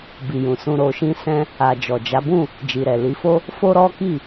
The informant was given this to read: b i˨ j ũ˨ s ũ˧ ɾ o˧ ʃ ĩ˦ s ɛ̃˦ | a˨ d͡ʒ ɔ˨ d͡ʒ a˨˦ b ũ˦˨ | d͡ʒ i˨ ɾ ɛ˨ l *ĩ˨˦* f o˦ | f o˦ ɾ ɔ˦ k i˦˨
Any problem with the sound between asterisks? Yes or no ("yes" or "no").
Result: yes